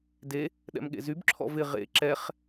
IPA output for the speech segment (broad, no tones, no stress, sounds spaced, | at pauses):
d e | ɗ ɛ̰ m ɠ ḛ z y b ǁʰ ɔ̰ v ɪ ʁ ḛ ǁ ɛ χ